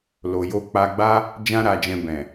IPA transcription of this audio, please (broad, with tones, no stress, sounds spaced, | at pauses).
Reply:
l o˨ j o˧ k͡p a˧ ɡ͡b a˦ | d͡ʒ ã˦ ɾ a˧ d͡ʒ ɛ̃˧ b ɛ̃˨